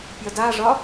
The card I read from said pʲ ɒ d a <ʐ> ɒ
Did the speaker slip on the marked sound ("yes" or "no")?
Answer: no